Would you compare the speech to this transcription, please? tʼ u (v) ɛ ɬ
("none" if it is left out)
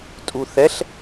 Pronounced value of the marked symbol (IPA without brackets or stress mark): θ